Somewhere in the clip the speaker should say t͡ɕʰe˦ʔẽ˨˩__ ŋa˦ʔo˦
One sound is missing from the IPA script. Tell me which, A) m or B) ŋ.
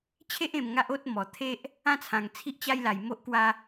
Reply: A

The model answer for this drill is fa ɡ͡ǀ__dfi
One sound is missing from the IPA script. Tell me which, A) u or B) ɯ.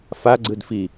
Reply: B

